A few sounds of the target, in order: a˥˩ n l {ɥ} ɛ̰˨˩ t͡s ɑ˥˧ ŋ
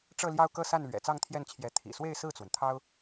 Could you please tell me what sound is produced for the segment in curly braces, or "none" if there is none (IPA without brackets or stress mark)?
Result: ɥ